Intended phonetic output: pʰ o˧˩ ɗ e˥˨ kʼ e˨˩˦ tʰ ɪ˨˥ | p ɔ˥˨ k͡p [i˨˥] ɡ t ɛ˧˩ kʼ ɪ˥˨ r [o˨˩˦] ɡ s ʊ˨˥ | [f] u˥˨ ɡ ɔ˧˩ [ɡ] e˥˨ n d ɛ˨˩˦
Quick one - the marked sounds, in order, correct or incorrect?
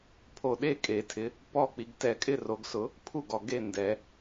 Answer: correct, correct, incorrect, correct

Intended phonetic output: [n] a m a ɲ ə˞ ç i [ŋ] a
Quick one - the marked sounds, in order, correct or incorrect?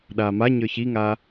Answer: incorrect, correct

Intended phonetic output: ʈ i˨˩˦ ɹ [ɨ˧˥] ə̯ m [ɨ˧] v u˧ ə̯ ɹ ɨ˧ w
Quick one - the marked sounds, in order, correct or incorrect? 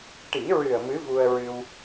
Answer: incorrect, incorrect

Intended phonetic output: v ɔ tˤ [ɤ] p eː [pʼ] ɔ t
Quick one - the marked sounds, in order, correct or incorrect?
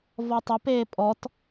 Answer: incorrect, correct

